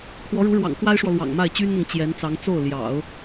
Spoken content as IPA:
kʰ w ɔ˧˥ ɻ u˧˥ ɻ w ɑ̰˨˩ ŋ k w a˥ ɪ̯ ʂ w ɔ˨ l w ɑ̰˨˩ ŋ m a˥˩ ɪ̯ t͡ɕ y˥ n n̪ ɤ˨ ŋ t͡ɕ j ɛ˧˥ n t͡s ɑ˧˥ ŋ t͡s o˥˩ ʊ̯ l j ɑ̰˨˩˦ ʊ̯

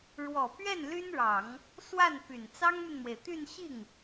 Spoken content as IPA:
ɻ w ɔ˨˩ p ɥ ɛ˥˩ n l y˥ n ɻ ɑ˨˩˦ ŋ | s w a˥˩ n p y˨˩ n t͡s ɑ˥ ŋ m y˨ n m w e˩ ɪ̯ t̪ y˥˧ n ɕ i˥˩ ŋ

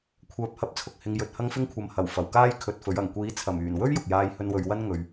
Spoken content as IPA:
kʷʰ œː˨ p̚ h ɐ˨˥ p̚ t͡sʰ ʊ˨ k̚ h ɪ˨ ŋ j ɵ˨ t̚ h ɐ˧ ŋ f ɪ˧ ŋ kʷʰ ɐ˨ m h ɐ˨˩ w f ɐ˨˩ w k aː˥ j kʰ ɵ˧ t̚ f ɵ˨˥ ɥ ɐ˨˩ ŋ kʷ iː˨˥ t͡sʰ ɐ˨˩ m yː˨˩ n w ɵ˥ ɥ j ʊ˨ k̚ j aː˧ j h ɵ˧ n w ɵ˨˧ ɥ w ɐ˥ n ŋ ɵ˧ ɥ

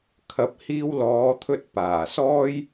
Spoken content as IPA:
kʰ ɐ˨˥ p̚ h iː˧ w l ɔː˨˧ t̪ʰ ɵ˧ t̚ p aː˨˩ s ɔː˥ j

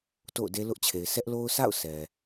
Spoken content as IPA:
t o̰˦˨ ʊ̯ d e˦ l ʊ˦ ʔ t͡ɕʰ e˨ ɪ̯ s ɛ˦ ʔ l o˦ ʊ̯ sʰ a̰˦˨ ʊ̯ s ɛ˨

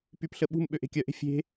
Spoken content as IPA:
p y p ɬ ə ɓ ṳ m ɓ ø ʔ e̤ kʲ œ ʔ e̤ fʲ e̤

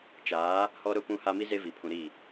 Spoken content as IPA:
t͡ʃ aː˨˦ | h ɔ˦ ɾ ʊ˦ p ũ˦ h a˦ m i˦ z e˦ v i˨ pʰ ũ˨ ɾ i˦˨

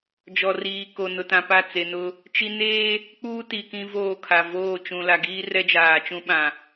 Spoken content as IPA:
d͡ʒ ɔ˨ r iː˨ k o˨ n ʊ˨ t ã˨ p a˦˨ t͡s e˨ n ʊ˦ | t͡ʃ i˦ n eː˦ | k͡p uː˦ t i˨ k ĩ˦ v oː˦˨ kʰ a˨ v oː˦˨ t͡ʃ ũ˨ l a˨ ɡ iː˦ r ɛ˦ d͡ʒ aː˨ t͡ʃ ũ˦ ɓ ã˨

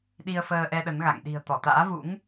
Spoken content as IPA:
ɗ i˧ ə̯ f əː˧ ʔ ɛ˧ ɗ ə˨˦ n ɣ a̰˧˨ ŋ ɗ i̤˨˩ ə̯ t̪ ɔ˧˩ t̪ a̰ː˧˥ v ṵ˧˥ ŋ

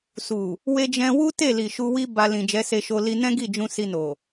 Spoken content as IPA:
s u˨ | w e˧ d͡ʒ ɛ̃˧ w u˦ t e˦˨ l i˨ ʃ u˧ w i˦ b a˧ l ĩ˨ d͡ʒ ɛ˨˦ s e˧ ʃ o˧ l i˧ n ɛ̃˦ ɡ i˦˨ d͡ʒ ũ˧ s i˧ n o˨

